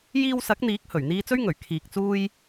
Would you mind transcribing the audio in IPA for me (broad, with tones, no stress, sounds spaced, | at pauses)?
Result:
j iː˧ w s ɐ˨˥ k̚ n̪ iː˨˥ k̚ h ɵ˨˩ ɥ n̪ iː˧ t͡s ɵ˥ ɥ ŋ ɵ˨˩ ɥ kʰ iː˨ k̚ t͡s uː˥ j